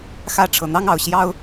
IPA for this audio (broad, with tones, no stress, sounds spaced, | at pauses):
x ä˥˨ ʈ͡ʂʰ ɤ˨˩ n̪ ɑ˦ ŋ ɑ˨˩ ʊ̯ ɕ j ɑ˦ ʊ̯